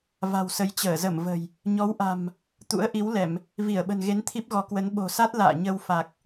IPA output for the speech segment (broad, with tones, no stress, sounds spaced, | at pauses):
v a̤˨˩ w s ə˨˦ j t͡ɕ əː˧˩ z ə˧˩ m v ə̤˨˩ j | ɲ ɔ˨˦ w ʔ a̤˨˩ m | t̪ ṵ˧˥ ə̯ ʔ i˨˦ w l ɛ˧˩˨ m | v i˧˩ ə̯ ɓ ə̤˨˩ n ɣ e˨˦ n t̪ʰ i˦˥ p̚ ɣ ɔ˨˦ k w ə˨˦ n ɓ o̤˨˩ s a˦˥ t̚ l a̰ː˧˨ ɲ ə˧ w f a˨˩ k̚